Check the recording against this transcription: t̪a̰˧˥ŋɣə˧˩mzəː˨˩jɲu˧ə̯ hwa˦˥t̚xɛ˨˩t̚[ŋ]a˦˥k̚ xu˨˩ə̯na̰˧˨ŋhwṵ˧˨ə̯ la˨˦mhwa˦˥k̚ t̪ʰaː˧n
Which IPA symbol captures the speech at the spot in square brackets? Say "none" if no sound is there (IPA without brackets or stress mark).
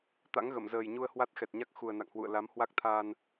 ɲ